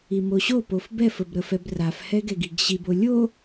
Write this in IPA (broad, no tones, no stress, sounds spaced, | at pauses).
i m o ɕ o p o f b ɛ f ə b ɾ ə f ɛ b r a f h ɛ ɡ ɛ ɡ i ɡ ɕ i b o lʲ o